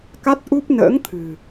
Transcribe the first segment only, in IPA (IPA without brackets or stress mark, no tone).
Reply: k